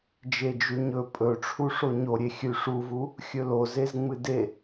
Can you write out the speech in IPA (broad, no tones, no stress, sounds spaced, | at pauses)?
d͡ʒ e d͡ʒ ʉ ɲ ɵ pʼ ɵ ʈ͡ʂʰ u ʂ o ɲ o ɾʲ e xʲ ʉ ʂ u v u | xʲ ɵ l o z e z ŋ͡m ɨ d e